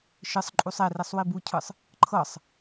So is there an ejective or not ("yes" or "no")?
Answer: yes